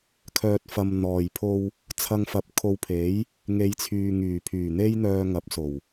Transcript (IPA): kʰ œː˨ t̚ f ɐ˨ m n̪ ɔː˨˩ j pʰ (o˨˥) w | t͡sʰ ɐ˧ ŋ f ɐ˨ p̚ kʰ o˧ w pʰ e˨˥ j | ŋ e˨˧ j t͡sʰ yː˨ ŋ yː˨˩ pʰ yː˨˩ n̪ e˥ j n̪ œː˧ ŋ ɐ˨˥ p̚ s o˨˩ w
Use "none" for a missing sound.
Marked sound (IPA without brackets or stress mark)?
o˧